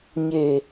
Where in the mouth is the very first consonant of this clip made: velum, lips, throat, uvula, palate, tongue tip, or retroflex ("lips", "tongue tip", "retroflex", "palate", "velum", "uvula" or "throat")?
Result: palate